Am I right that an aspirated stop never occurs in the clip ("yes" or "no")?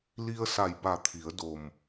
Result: no